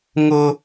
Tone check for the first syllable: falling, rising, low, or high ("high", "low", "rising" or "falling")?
high